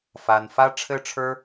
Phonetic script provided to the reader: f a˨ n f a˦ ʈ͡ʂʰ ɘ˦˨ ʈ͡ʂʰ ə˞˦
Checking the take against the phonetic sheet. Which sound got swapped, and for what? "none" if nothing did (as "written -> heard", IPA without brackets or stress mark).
none